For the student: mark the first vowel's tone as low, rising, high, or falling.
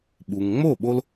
low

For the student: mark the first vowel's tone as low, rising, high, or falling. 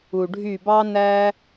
low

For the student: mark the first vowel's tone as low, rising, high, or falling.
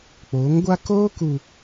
rising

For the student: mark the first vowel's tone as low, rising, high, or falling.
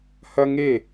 high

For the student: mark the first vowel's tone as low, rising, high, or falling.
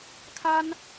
high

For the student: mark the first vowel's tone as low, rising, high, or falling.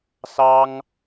high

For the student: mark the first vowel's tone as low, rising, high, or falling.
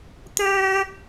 high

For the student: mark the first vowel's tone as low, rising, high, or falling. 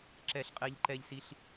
high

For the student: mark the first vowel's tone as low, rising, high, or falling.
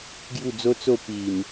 falling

